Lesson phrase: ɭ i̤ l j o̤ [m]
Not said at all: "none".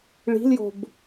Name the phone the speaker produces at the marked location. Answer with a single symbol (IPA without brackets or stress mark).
b